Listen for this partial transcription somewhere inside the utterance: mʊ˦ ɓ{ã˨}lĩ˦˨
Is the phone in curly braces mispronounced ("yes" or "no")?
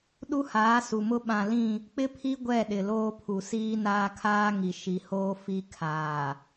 no